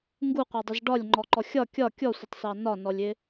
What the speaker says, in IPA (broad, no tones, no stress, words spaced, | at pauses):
ŋɡuqʷɑdˤɪz ɖɒlʲŋ͡ǃɔǃɔ xʲɒ kʲɒ kʲɔsʷɪtˤsɑ nɒnɔlʲɪ